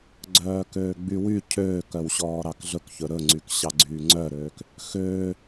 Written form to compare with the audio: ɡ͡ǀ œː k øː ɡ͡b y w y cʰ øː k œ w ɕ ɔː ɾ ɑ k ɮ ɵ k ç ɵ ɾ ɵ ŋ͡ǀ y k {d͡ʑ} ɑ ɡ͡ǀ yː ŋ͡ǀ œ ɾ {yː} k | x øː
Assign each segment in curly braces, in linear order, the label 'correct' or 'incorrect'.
incorrect, incorrect

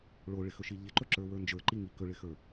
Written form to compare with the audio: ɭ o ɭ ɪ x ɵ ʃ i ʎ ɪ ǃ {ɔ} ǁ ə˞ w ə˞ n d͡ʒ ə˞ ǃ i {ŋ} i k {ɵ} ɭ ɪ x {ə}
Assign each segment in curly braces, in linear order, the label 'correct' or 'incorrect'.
incorrect, correct, correct, incorrect

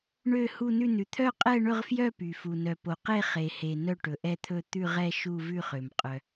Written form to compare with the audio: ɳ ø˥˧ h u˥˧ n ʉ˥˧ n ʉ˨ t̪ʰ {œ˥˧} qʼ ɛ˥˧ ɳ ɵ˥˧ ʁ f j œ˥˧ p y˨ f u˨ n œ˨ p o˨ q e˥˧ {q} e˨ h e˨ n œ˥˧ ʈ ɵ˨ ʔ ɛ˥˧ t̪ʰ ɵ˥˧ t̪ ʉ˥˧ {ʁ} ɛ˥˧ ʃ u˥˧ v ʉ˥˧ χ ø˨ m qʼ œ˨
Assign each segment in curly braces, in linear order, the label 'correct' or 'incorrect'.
correct, incorrect, correct

